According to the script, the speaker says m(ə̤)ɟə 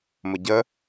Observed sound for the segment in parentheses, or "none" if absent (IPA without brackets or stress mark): ə